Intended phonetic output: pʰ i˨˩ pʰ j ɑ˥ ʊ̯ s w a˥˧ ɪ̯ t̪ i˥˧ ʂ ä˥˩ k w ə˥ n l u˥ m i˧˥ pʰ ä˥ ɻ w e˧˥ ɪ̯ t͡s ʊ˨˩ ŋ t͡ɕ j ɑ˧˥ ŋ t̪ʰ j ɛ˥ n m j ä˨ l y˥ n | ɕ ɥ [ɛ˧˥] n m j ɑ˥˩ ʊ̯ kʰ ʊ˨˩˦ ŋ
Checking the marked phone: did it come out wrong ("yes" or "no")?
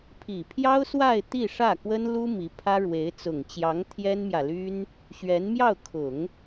no